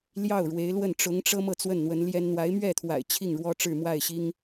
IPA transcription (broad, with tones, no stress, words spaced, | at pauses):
ljɑ˥˩ʊ̯ɻwe˧˥ɪ̯lwə˥˩n ʈ͡ʂʊ˧˥ŋʈ͡ʂɤ˥ mɤ˥˧t͡swə˥˩nn̪wə˧˥n ljɛ˥n n̪wa˧˥ɪ̯mɥɛ˥˩t̪ʰwa̰˨˩ɪ̯ t͡ɕʰi˥˩ŋɻwɔ˥ʈ͡ʂɻ̩˥˧mwa˥˩ɪ̯ ɕi˥ŋ